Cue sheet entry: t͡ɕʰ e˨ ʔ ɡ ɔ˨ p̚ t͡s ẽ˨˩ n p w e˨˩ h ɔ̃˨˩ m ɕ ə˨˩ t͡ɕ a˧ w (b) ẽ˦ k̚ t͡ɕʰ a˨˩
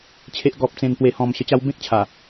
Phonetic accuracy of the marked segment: correct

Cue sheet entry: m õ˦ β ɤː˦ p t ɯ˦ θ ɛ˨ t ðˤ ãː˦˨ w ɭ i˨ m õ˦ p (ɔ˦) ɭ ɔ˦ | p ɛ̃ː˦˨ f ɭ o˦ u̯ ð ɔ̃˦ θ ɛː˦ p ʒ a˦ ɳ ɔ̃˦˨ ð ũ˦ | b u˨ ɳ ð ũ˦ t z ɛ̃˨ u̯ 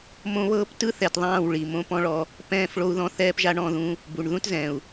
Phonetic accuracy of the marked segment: incorrect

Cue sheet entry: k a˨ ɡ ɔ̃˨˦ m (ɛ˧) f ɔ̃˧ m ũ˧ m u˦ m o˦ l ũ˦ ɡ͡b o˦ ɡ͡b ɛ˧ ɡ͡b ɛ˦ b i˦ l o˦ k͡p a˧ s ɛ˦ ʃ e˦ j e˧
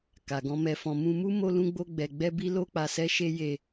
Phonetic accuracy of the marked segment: correct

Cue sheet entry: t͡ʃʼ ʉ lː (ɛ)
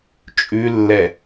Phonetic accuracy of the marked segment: correct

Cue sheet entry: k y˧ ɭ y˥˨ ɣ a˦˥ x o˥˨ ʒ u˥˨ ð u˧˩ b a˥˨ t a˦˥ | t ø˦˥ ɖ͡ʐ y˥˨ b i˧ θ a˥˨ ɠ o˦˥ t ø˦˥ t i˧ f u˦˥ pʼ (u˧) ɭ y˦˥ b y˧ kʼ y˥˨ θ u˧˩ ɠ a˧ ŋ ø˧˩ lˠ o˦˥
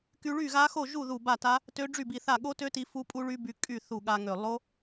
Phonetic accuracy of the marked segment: incorrect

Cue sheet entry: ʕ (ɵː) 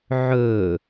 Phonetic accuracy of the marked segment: correct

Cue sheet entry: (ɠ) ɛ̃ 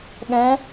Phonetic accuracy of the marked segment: correct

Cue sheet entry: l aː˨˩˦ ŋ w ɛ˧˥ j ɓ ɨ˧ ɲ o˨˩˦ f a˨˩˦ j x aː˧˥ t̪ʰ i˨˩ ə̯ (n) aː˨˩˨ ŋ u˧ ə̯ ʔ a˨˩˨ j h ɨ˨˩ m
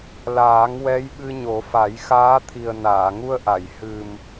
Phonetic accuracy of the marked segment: correct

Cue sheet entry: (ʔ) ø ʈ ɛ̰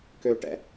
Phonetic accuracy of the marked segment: incorrect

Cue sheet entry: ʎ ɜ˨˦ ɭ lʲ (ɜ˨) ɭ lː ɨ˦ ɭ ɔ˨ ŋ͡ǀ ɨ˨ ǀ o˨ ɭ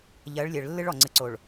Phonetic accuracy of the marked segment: correct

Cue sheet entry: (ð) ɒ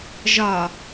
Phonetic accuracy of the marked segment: incorrect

